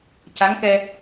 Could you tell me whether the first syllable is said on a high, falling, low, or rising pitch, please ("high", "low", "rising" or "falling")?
rising